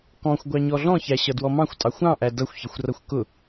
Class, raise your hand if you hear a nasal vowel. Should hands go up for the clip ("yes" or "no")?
yes